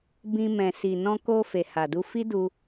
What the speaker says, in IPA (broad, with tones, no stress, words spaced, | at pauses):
bĩ˧mɛ̃˨ si˨ nɔ̃˧ko˧ fe˨ha˨du˧ fi˦du˧